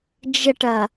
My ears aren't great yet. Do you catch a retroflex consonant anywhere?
yes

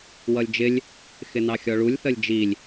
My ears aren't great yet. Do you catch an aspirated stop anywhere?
no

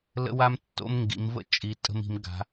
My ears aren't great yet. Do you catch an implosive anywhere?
no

